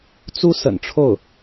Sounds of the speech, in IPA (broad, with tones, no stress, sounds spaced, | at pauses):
t͡s u˥ s ə̰˨˩ n ʈ͡ʂʰ o˥˩ ʊ̯